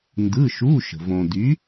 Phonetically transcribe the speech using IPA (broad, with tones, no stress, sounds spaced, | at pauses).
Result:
n d ɯ˧˥˧ ʃ u˧˥˧ ʃ ə̤˨ v õ˨ d y˨˥